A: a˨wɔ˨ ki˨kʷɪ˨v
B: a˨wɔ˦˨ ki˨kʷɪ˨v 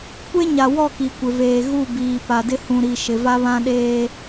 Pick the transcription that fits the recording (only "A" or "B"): B